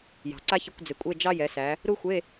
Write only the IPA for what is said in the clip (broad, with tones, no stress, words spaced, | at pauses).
jɑ̤˩ǀa˥çɪ˧˥˧kʷ d͡zɪ˩˧kʷʼe˧˥˧ d͡ʒɑ˥ jɛ˩˧sæ˩˧ | ɾu˥xʷe˧˥˧